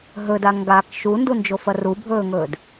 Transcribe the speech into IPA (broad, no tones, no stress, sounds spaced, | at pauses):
ɦ ɵ d a ŋ ɡ a k ʃ u n d u n d͡ʒ o f ɐ r u bʱ ɵː ŋ ɵː d